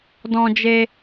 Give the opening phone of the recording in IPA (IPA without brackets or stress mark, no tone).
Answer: d